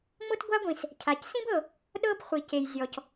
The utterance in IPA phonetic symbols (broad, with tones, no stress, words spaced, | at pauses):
ŋ͡mo˥tɡʷa˥ɡʷĩ˩s | cʰa˩csĩ˥bɤ˩ | ɗɤ˥b χʷi˩ce˩j zʲɔ˩c